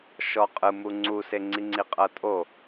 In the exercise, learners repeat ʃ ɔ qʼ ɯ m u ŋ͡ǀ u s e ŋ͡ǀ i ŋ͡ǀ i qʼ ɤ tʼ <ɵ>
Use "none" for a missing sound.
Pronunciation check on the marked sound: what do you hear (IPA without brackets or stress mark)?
o